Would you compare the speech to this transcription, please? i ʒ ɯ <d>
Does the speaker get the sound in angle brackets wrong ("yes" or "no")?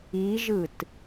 yes